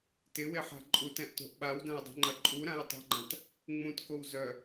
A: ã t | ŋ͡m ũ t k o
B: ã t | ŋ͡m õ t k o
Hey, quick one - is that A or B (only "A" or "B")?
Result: A